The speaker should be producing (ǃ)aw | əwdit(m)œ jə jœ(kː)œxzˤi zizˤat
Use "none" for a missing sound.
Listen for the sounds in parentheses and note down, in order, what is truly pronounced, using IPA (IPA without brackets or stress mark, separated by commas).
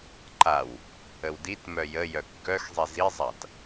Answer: ǃ, m, kː